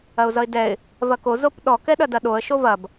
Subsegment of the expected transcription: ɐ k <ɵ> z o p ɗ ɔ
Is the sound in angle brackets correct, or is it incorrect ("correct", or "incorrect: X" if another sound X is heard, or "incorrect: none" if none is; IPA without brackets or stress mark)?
incorrect: o